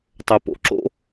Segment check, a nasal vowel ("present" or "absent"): absent